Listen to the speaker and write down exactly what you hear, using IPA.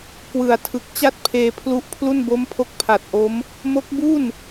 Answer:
k w ɯ˨˩ a̯ tʰ ɯ˨˩ k̚ t͡ɕ a˥˩ t̚ pʰ eː˧ pʰ l u˦˥ ʔ pʰ l u˥˩ n b o˦˥ m pʰ o˦˥ k̚ pʰ a˨˩ t̚ ʔ o˦˥ m | m o˦˥ k̚ b u˥˩ n

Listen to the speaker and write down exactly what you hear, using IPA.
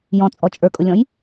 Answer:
j ɔ̃ t͡sʼ ɔ t͡ʃʼ ə˞ kʼ ʊ lʲ ɔ̃ j

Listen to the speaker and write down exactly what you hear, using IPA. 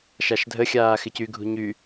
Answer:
ʃ a ʃ dʱ ə xʲ aː x ɪ c y ɡʱ ṳ ɲ y

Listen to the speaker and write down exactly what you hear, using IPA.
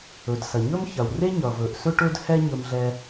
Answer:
ɵ˩ d s ɐ˩ ɲ ɵ˥ m ç ɐ˩ w r e˥ ɲ ʌ˩ v ɵ˩ ʔ s ɵ˥ ʈ ɵ˥ d h ɛ˥ ɲ ɵ˧ m ɮ ɛ˧

